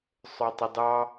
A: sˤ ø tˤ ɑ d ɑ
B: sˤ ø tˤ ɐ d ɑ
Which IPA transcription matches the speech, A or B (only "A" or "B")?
B